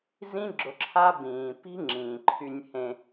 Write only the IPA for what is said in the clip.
z ĩ˦ ɡ͡ǁ ʊ˧ ǁʰ a˦ b ĩː˨ p i̤˦ ŋ͡ǁ ĩː˨ ǃʰ y˧ nʲ h ẽ˧

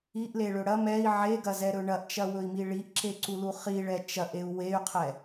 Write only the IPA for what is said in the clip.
i ʔ l e ɭ ɵ ɽ ɐ m ɛ i̯ ʕ e ɡ ɐ z ɛ ɾ ɵ ɳ ɐ ʔ t͡ʃ ɐ w ɵ i̯ m i ɭ i ʔ ǁ e ǀ u l u χ i ɭ ɛ t͡ʃ ɐ ʔ e u̯ w e y̯ qʰ ɛ

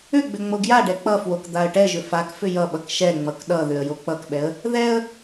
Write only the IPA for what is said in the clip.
ʏ ɡ͡b ʏ ŋ͡m o ɡ j a ɖ ɛ k͡p ʌ f w o k d̪ a ə̯ ʈ ɛ ʒ ʏ f a k f ʏ j ʌ ɓ ʌ k ʃ ɛ ŋ͡m ʌ k ɗ ʌ ð ʏ ə̯ j o k͡p ʌ k ɓ ɛ ə̯ | ð ɛ ə̯

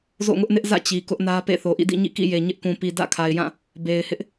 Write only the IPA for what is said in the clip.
z o̰˦˨ ŋ ʊ˦ ʔ n ɪ˦ ʔ z ä̰˦˨ t͡ɕ i˨ k ʊ˦ ʔ n ä˦ p ḛ˦˨ θ o˨ ʔ ḭ˦˨ d ḭ˦˨ ɲ ḭ˦˨ k ḭ˦˨ j e˨ ɲ ɪ˦ ʔ k ũ˨ p i˨ d ä̰˦˨ kʰ a˨ ɪ̯ j ã˦˨ | b e˨ ɪ̯ h ɪ˦ ʔ

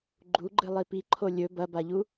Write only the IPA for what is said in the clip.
ɡ͡ǃ u ɡ͡ǃ ɨ lˠ i p i ǃʰ o lʲ ɵ b ɐ b a ʎ u

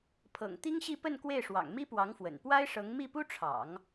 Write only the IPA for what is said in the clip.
pʰ ɤ̰˨˩ ŋ t̪ i˥ ŋ ɕ i˥˧ p ə˥˧ n k w e˥˩ ɪ̯ ʂ w ɑ̰˨˩ ŋ m i˥ p w ɑ˧˥ ŋ f w ə̰˨˩ n p w a˥ ɪ̯ ʂ ɤ˧˥ ŋ m i˥˩ p u˥ ʈ͡ʂʰ ɑ̰˨˩˦ ŋ

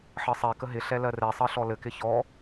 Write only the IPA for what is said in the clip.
ħ ɜ sˤ ɛ k ə ɦ ɪ ɬ ɛ l ɜ r ɛ sˤ ɜ ɬ ɔ l ɘ k ɪ ç ɔ

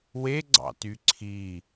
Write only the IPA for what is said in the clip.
w e ɡ͡ǀ ɑ̰ t y ǀʰ i

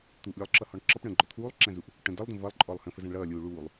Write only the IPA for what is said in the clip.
t̪ uː ʔ lʲ ə˞ lˠ ǁ ʌ h ɔ ɳ ǁ ʌ p ɳ ə̃ː ɡ͡ǃ ɔ t̪ʰ uː lˠ ǁ æ̃ z u ʔ | ʈ ə̃ d ʌ lˠ d ə̃ v ʌ lˠ ǃʼ ɔ lˠ h ə̃ f ə z æ̃ ɳ ɭ ʌː lʲ uː ɭ uː lˠ

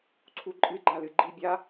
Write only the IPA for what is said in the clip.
ǀʰ u ǃʼ ɨ ɡ͡ǃ a l ɨ ɡ͡ǃ i bʲ a

